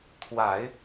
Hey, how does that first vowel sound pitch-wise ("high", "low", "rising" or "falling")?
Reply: low